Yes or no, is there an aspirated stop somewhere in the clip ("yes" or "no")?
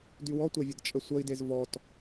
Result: no